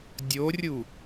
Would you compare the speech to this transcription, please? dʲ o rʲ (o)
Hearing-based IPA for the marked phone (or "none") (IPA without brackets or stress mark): u